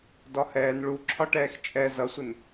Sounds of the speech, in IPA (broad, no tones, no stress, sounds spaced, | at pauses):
d ɒ h ɛː n ɭ u ǁʰ ɒ ʈ ɛː x t͡ʃʼ ɛ z ʌ sʷ ɪ n